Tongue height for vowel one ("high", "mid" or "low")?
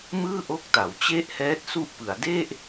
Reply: high